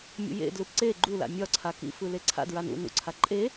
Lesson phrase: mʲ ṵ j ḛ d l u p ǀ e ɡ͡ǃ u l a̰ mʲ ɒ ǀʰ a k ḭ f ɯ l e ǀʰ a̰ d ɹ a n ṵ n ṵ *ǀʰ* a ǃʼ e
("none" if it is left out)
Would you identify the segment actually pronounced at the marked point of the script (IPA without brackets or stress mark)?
ǀʰ